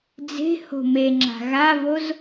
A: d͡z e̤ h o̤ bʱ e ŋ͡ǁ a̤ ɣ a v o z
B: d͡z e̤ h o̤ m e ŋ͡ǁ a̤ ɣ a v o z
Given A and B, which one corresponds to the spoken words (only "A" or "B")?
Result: B